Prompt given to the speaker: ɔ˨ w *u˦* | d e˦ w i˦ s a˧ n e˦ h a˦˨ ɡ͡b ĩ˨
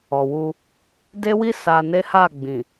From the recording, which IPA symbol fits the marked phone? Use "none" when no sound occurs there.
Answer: u˧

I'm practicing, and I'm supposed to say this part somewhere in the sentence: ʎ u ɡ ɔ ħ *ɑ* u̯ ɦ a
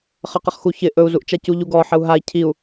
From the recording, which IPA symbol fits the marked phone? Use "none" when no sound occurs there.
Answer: ə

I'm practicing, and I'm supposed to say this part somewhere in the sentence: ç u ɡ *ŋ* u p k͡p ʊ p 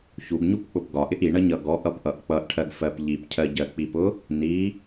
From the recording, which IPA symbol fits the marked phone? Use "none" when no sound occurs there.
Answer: ɲ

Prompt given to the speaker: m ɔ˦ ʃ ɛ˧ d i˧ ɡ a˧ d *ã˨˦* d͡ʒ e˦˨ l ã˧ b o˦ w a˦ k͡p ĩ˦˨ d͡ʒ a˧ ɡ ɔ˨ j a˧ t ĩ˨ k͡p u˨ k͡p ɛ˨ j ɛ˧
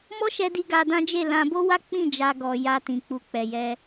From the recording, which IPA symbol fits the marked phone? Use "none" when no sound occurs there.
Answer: ã˦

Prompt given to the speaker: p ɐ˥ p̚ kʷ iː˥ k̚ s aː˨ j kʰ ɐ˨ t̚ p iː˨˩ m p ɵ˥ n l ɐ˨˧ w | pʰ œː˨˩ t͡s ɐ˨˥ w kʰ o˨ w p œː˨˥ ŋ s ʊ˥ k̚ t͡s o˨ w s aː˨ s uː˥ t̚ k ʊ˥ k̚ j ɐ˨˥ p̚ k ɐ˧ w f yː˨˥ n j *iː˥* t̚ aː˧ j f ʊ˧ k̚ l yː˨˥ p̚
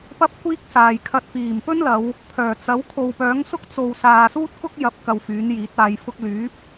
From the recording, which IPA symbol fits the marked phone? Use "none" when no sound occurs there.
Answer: iː˨˥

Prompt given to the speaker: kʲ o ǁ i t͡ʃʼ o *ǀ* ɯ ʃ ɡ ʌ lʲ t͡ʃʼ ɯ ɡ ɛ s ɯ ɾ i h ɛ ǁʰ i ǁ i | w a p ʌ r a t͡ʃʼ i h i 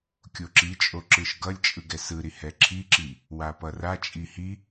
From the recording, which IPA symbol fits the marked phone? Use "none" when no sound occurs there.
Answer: ǁ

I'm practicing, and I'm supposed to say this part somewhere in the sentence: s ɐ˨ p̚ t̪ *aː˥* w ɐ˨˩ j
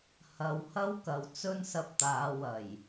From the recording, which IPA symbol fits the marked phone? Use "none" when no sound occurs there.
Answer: aː˨˧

